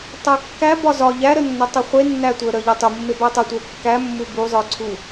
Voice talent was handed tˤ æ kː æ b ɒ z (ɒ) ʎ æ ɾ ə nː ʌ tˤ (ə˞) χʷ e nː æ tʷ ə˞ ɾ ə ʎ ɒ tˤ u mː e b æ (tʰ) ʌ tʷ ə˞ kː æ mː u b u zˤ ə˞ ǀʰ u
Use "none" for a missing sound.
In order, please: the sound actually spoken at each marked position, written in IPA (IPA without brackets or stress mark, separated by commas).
ɒ, ə, tˤ